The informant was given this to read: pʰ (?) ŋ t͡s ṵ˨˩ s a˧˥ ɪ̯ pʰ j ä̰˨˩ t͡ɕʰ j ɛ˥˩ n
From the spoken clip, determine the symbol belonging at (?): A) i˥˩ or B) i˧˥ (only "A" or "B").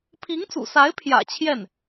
B